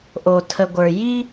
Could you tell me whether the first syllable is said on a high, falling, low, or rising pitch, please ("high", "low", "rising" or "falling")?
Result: low